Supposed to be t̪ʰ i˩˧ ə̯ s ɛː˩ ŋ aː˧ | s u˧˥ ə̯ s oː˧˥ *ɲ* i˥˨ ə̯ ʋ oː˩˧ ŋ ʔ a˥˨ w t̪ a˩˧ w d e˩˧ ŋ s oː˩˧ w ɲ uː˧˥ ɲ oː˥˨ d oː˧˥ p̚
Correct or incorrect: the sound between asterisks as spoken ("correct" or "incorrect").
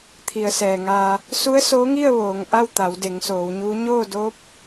incorrect